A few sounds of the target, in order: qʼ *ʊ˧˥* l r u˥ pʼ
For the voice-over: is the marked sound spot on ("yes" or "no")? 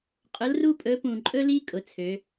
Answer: yes